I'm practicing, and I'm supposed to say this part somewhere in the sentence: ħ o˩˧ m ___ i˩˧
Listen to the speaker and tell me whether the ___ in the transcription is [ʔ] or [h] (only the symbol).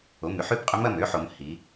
h